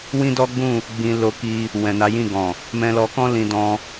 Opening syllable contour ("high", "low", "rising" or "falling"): high